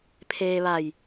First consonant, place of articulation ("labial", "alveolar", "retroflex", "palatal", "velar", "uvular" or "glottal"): labial